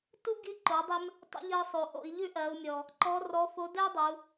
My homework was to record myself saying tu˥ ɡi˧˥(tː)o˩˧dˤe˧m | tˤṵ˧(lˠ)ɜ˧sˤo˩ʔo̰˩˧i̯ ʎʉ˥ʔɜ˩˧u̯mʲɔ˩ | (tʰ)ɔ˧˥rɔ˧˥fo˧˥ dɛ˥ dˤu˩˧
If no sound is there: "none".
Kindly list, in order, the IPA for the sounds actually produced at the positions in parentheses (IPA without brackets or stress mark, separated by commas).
ǃ, ʎ, ǃ